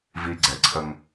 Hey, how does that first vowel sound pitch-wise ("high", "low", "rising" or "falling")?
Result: high